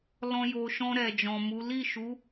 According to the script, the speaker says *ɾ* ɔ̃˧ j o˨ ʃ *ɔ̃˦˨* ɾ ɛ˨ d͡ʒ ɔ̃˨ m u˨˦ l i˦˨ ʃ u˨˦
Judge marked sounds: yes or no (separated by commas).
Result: no, no